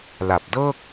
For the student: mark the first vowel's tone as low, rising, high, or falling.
low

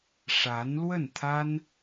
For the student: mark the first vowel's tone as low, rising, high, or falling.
rising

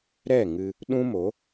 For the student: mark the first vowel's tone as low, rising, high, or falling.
falling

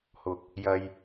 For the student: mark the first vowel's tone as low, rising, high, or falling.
low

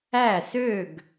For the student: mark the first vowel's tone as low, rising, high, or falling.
falling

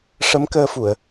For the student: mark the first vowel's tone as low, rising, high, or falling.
rising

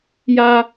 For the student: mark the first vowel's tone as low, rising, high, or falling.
high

